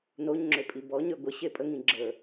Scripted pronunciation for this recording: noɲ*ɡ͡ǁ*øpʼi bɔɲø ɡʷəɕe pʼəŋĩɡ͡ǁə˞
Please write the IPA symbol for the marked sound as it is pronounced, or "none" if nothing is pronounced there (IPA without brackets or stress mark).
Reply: ŋ͡ǁ